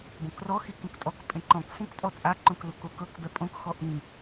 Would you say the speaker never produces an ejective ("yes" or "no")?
no